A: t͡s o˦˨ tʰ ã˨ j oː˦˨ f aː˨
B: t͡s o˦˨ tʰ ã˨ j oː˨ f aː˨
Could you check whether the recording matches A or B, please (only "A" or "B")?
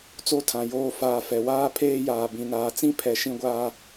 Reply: A